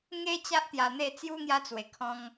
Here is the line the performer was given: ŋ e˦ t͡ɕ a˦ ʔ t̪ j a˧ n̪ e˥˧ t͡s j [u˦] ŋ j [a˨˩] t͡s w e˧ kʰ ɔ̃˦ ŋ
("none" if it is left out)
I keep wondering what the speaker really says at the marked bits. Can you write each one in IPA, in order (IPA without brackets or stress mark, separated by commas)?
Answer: u˦, a˦